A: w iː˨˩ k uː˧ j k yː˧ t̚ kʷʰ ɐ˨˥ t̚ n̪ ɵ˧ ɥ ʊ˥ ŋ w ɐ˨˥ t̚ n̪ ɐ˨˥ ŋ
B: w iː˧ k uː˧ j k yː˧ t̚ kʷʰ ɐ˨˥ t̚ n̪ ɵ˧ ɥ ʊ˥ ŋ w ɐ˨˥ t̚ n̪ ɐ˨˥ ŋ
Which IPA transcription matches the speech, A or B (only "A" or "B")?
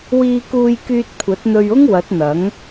B